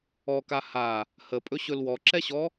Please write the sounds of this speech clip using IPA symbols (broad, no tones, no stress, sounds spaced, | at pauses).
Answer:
ɔ k a h a | h ə pʼ ɵ ɕ ɵ l w ɔ ǁ ɛ ɕ ɔ